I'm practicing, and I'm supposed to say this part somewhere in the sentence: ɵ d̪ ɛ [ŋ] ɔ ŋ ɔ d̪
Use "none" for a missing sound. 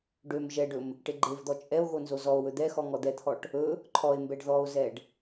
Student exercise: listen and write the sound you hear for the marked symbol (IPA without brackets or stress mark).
x